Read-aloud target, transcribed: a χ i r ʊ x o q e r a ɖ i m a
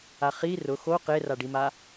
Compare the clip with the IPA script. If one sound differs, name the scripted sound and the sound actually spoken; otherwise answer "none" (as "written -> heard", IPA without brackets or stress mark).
none